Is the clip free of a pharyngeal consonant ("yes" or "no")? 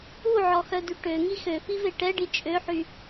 no